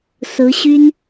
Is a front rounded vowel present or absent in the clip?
present